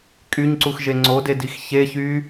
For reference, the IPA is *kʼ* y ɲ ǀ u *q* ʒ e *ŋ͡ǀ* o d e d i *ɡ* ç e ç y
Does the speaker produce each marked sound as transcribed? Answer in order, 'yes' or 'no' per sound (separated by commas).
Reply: yes, no, yes, no